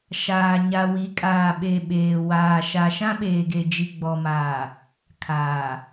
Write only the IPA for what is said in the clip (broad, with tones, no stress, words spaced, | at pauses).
ʃaː˨ ɲa˨wi˨˦kʼaː˨ɓe˨ ɓeː˨waː˨ ʃa˨ʃã˦ ɓeː˨ɡe˨d͡ʒi˨ ɡ͡bɔ˨maː˨ | kʰaː˨